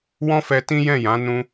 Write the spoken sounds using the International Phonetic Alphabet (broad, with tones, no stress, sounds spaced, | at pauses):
w ɔ̃˦ f ɛ˧ t ĩ˦ j ɛ̃˦˨ j ã˨˦ n ũ˦